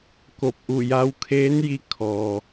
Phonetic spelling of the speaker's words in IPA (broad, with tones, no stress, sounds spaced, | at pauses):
k o˧˩ p̚ ʔ u˧˩ j a˧˥ w kʰ eː˧˥ n j i˧ kʰ ɔː˩